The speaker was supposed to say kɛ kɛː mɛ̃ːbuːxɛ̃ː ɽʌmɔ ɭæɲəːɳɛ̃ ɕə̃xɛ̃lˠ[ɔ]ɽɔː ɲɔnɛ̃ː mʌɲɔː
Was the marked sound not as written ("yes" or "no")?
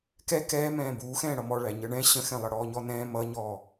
yes